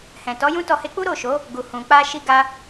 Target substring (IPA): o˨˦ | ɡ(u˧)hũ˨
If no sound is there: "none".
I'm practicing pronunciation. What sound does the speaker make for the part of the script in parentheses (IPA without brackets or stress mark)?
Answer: u˨